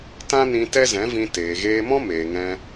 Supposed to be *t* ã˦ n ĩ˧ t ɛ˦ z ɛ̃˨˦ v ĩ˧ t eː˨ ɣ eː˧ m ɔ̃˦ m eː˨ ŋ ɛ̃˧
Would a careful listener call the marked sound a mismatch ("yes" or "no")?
no